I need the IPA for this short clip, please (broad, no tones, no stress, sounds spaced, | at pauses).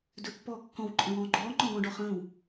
d ɵ pː ɔː kː ɔ̃ w ǃʼ ə̃ w ɔ̃ː ɡ͡ǃ ɔː ŋ͡ǃ ɔ̃ ɡ ɔ̃ ɖ ɔ χ ə̃ː w